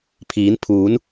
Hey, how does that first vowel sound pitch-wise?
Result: rising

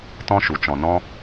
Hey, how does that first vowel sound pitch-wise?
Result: high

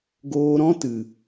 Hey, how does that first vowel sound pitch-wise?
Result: low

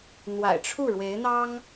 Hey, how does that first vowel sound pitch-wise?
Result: low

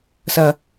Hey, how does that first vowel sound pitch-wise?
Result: low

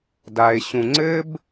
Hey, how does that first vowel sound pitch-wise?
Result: low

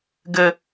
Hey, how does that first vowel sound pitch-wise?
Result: high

